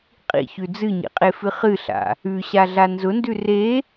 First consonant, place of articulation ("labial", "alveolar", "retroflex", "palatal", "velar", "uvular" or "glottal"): uvular